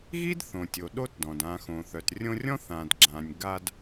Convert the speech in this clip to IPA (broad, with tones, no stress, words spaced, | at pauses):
ɣi˥dθõ˩tʲo˩ ɗo˦tdɔ̃˩dã˨ xõ˩θœ˩trʲõ˦rʲɔ̃˥ θã˨dɡ͡ǁã˨nʲ ɡa˦d